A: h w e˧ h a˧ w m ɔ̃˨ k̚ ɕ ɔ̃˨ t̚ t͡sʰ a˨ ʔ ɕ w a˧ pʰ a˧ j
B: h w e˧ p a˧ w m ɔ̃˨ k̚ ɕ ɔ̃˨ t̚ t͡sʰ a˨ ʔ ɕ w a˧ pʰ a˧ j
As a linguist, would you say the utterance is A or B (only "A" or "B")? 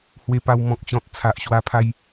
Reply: B